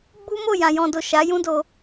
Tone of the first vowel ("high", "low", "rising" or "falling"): high